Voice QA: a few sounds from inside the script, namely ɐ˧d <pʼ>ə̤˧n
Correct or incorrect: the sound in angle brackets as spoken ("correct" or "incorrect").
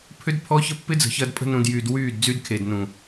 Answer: correct